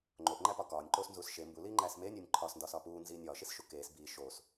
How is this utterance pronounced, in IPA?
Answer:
ŋ͡ǃ o ʔ ŋ͡ǃ æ p ɒ k ɒː nʲ ǃ oː s n z uː s ʃ e m b u l iː ŋ͡ǃ æː s m eː nʲ oː nʲ ǃʰ ɒː s n d ɒː s ɒː p uː n z iː nʲ ɒː ʃ i s ʃ u k eː s b iː ʃ oː s

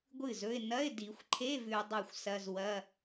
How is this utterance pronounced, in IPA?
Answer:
ɡʷ ɨ˥˩ z ɵ˧˥˧ ɪ̯ n ɐ˧˥˧ ɪ̯ d i˨˩˦ xʷ ǃʰ e˧˥˧ v ʉ˨ ʊ̯ dˤ a˥˩ xʷ s ɐ˧˥˧ z w ɐ˧˥˧

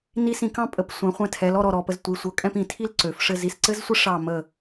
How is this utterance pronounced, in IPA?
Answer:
n i˧ s ĩ˧˩ k ɑ̃˥˧ pʼ ə˩˧ p sʷ ɛ̃˩˧ χʷ ɛ̃˧ tʰ ɛ˩˧ l ɔ˧ ɾ ɔ˧˩ ɾ ɔ˧˩ p ə˧ z tʷ i˩˧ sʷ ɤ˩˧ kʼ ɛ̃˥˧ p ĩ˩˧ tʰ i˥ l ǀ ø˩˧ f ʂ ɘ˥˧ z i˧ s ǀ ɘ˥ z sʷ ɘ˥ ʂ ɑ˥˧ m ə˥˧

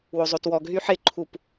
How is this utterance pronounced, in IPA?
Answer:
w o zˤ o t w ɔ ɡ ɦ y ħ ɪ ǃʰ u p

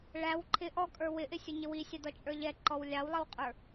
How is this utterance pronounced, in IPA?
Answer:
ɭ æ w ǃʰ ɪ ʔ ɔ kʼ ə˞ w ɪ ʔ ɪ sʲ ʊ ɲ ɪ w i sʲ ɑ d ɔ t͡ʃʼ ə˞ ʎ ɛ ǃ ɔ w lʲ ɑ w lˠ ə w qʼ ə˞

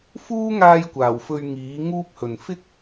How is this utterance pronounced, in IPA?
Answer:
f uː˥ ŋ aː˧ j kʷ aː˨˩ w f ɵ˧ ɥ ŋ iː˨˥ ŋ uː˥ p̚ h ɵ˨ n f ɪ˥ k̚

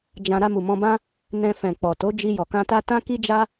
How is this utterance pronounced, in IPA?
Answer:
d͡ʒ ã˧ ɾ a˧ m u˨ m ɔ̃˧ b ã˦ | n ɛ̃˧ f ɛ̃˨ k͡p ɔ˨ t o˨˦ d͡ʒ i˧ j ɔ˨ k ã˧ t a˦ t ã˦ k i˦ d͡ʒ a˦

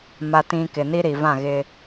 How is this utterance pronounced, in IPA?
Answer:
m a˨ t ĩ˨ k ɪ˨ n i˦ ɾ i˨ v ã˦˨ ɣ ɪ˦

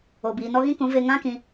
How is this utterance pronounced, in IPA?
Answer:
o˨ b iː˨ n ɔ˧ ɣ ĩ˦ k ũ˨˦ v e˧ ŋ ã˦ k ĩ˧

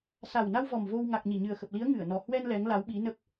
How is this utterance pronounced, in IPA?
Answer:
s a˨˩ w n a˧ w v ɔ˨˩ m v o˧ w ŋ a˨˩ k̚ ɲ i˧˩ ɲ ɨ˨˩ ə̯ x ə˨˩ p̚ l i˨˦ ə̯ ŋ ɨ˧˩ ə̯ n ɔ˨˩ h w ɛ˧ n l ɛ˨˦ ŋ l a˨˦ w ɓ i˨˦ n ə˦˥ p̚

